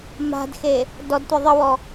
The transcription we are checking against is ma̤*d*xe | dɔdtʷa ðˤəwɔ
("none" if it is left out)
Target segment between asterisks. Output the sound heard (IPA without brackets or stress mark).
d